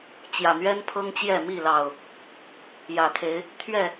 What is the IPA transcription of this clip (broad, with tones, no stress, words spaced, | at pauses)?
t͡ɕjä˨˩n̪ɥɛ˦npʰɤ˦ŋt͡ɕjɛ˥˨ mi˥˨lɑ˨˩ʊ̯ | jä˨˩t̪ʰe˨˦ɪ̯ | t̪ʰɥɛ˥˨